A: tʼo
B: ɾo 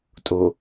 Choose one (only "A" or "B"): A